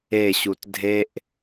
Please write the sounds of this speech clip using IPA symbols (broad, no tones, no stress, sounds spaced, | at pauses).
e ɕ u t dʱ e ʔ